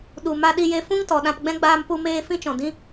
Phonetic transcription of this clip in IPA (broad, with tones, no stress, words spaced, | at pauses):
ɗu˨ma˧ ɗi˧je˧ fũ˦ŋ tɔ˨ɗã˧pɡ͡bɛ̃˦ ɡ͡baː˧mpu˧meː˧ fĩ˦t͡ʃɔ̃˨ dĩ˧